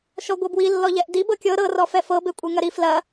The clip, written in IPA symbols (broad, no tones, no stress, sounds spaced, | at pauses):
ʃ ɔ ɡʷ ɤ b w i lː ɔ ʎ ɛ ʔ d i b ɤ kʲ ɤ ɾ ɤ r ɔ f ɛ f ɤ b e kʷʼ e ŋ ɐ ɾ i f l ɐ